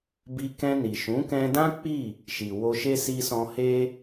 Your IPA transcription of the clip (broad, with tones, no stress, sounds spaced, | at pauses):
b i˧ k ɛ̃˧ n i˨ ʃ ũ˨˦ k ɛ̃˧ d ã˦ k͡p i˦˨ | ʃ i˨ w o˧ ʃ e˦ s i˧ s ɔ̃˧ h e˦